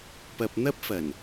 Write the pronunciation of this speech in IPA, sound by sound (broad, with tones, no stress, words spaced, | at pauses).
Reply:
pɐ˨p̚ n̪ɐ˥p̚ fɐ˨˩n